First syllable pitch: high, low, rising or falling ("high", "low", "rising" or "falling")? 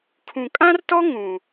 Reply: low